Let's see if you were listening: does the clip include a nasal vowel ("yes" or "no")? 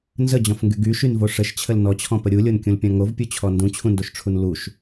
yes